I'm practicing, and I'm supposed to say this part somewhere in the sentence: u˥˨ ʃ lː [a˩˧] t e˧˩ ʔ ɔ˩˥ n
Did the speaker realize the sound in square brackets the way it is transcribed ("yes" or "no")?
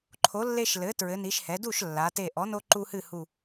yes